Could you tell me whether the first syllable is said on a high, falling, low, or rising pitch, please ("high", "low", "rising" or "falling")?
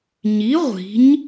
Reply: rising